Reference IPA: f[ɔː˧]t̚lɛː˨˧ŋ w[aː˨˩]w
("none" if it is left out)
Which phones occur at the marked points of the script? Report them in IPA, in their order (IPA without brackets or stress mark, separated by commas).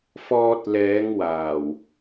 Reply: ɔː˧, aː˨˩